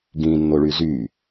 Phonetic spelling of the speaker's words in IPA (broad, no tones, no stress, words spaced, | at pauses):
ɡĩnːoɭy zy